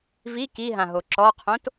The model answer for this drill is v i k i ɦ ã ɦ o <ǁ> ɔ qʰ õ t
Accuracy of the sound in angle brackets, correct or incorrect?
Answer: correct